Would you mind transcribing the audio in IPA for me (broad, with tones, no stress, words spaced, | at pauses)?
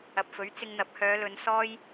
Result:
ɐ˨p̚fɵ˨˥ɥ t͡sɪ˧ŋn̪ɐ˨˥p̚hœː˨˧lɵ˨˧n sɔː˥j